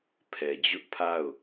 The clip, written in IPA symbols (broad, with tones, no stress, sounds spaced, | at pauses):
pʰ ɛ˨ d͡ʑ ʊ˦ ʔ pʰ a˦˨ ʊ̯